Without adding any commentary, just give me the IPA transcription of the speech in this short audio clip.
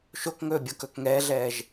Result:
ʃ o k ŋ ɵː bʲ o k ɵ k ŋ ɛː ɮ ɛː ʒ

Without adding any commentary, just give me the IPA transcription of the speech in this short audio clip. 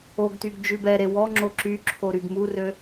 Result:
o ɡ t y ɡ d͡ʒ ʉ b ɛ ɾ e w ɔ ŋ͡ǁ o ǁ y ǁʰ o ɾ y ɡ m u r ø

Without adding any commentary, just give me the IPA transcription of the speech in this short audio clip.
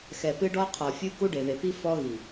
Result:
x ɛ˨ p ɨ˦ ɖ ɔ˦ qʰ ɔ˨ fʲ u˦ k u˦ ɖ e˨ ð e˨ p i˦ f ɔ˦ ɣ i˨

